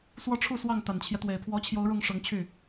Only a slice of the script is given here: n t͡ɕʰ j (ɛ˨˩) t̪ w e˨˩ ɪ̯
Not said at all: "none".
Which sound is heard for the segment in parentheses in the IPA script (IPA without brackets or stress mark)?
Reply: ɛ˦